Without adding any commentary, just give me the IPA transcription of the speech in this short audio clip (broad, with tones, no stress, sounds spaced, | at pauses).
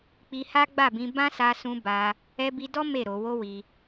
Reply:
k͡p i˧ h a˦ ɡ͡b a˦˨ b ĩ˧ b ã˦ s a˧ s ũ˧ b a˧ | ɛ˧ b i˧ d ɔ˦ m e˦˨ ɾ o˧ w o˦ w i˧